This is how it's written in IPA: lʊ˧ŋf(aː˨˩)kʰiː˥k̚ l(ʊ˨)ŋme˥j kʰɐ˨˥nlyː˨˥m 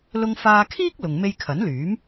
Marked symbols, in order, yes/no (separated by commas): no, no